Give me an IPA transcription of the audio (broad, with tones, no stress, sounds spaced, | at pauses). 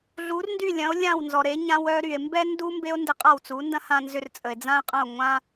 ɮ u˩˥ r n d y˥˩ lʲ ɐ̃˩˥ o̯ lʲ ã˥˩ w n z ɔ˩ ɾ e˩˥ ɲ ã˧ w œ˧ ɾ y˩ e̯ m b ɛ˥ n d u˥ m b e˥ o̯ n d e˧ qʼ a˥˩ w t͡s u˩˥ n d ɐ̃˥ h ã˧ n z ʏ˧ r t͡sʼ ə˩ e̯ d͡z ã˥ e̯ qʼ ɐ̃˥˩ o̯ ŋʷ ã˥